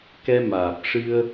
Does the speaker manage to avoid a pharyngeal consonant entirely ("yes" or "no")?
yes